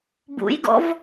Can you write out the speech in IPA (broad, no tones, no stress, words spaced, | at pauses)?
bṵjɡɔ̰v